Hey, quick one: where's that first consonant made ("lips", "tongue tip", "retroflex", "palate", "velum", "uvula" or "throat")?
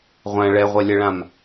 uvula